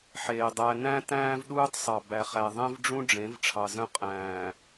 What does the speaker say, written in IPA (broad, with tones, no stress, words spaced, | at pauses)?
ħeː˨ dˤæ˨ næ̃˦ tæ̃ː˦vɗuː˦tˤsˤɑ˨ bæ˨χæ˨ðˤẽ˦vɖ͡ʐũ˦ ɖ͡ʐẽ˨˦v ʈ͡ʂʰɑ˨zœ̃˦ qʼæ̃ː˨